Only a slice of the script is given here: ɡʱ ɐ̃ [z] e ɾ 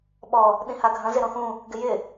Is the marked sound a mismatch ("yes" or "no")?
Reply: no